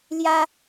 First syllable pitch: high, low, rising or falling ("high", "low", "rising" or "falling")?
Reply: high